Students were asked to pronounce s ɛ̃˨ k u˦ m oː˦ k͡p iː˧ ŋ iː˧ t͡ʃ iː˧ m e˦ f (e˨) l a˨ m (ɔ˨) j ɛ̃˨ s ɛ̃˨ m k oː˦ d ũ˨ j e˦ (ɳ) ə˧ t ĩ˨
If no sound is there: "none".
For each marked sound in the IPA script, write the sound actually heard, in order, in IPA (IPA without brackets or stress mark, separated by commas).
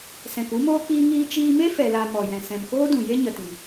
ɛ˨, ɔ˨, ɲ